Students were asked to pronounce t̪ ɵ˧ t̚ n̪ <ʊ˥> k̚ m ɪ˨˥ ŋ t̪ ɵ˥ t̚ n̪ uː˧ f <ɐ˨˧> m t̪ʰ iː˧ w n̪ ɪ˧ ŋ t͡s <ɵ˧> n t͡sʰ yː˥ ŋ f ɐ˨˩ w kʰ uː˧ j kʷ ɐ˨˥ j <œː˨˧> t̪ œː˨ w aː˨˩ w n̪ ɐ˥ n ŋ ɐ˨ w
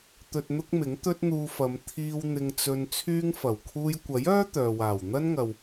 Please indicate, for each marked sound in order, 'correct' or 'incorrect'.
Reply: correct, correct, correct, incorrect: œː˥

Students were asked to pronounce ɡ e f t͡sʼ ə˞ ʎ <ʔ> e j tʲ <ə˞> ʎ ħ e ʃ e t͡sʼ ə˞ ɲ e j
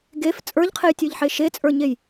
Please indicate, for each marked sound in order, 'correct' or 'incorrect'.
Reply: incorrect: qʰ, correct

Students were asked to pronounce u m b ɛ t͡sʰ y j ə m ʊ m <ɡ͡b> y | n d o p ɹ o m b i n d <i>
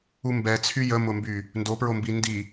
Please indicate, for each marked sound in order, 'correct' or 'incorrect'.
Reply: incorrect: b, correct

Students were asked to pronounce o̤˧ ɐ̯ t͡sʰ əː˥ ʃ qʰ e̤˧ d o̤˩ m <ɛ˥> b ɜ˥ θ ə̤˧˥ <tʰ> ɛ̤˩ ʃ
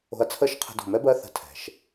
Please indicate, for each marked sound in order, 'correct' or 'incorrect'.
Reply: correct, correct

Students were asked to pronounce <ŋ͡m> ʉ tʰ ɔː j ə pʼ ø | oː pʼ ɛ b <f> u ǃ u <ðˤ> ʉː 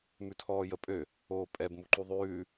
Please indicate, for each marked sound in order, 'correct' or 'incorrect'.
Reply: incorrect: m, incorrect: m, correct

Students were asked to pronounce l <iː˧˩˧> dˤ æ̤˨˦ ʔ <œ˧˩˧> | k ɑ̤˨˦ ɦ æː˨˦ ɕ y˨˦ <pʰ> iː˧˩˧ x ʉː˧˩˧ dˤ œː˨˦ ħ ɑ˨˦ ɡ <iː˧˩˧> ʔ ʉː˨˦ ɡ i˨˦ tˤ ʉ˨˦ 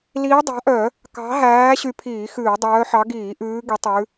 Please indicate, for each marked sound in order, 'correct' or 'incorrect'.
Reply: incorrect: iː˨˦, correct, correct, correct

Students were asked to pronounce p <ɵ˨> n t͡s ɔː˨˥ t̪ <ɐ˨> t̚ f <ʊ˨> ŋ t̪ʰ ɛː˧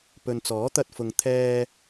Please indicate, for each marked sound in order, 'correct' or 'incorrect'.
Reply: correct, incorrect: ɐ˧, correct

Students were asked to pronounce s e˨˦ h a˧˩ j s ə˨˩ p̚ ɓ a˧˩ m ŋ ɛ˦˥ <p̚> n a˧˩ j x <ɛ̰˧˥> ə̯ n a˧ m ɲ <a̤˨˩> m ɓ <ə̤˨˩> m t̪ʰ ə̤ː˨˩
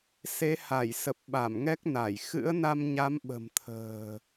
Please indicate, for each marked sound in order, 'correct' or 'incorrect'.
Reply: incorrect: k̚, incorrect: ɨ̰˧˥, incorrect: a˨˦, correct

